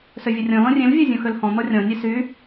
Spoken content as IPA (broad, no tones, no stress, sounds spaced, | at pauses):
s ø vʲ ə rʲ ɔ̃ l ɔ̃ rʲ ẽ l vʲ o zʲ ɔ̃ x ø l h ɔ̃ n̪ ɔ rʲ ɔ̃ nʲ e s y